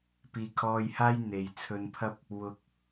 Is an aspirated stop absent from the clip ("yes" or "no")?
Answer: no